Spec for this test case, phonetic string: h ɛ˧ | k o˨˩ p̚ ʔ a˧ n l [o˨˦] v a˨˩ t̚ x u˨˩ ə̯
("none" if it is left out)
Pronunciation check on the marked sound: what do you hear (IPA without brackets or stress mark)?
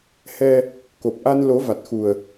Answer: o˨˦